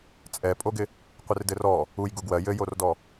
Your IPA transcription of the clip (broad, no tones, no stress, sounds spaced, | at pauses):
t͡sʼ ɛ pʼ o ɡ ɪ | qʷ ɪ r d ɘ r ɔ | u j ɡ u ɡ w ɜ j ɘ j o r d ɔ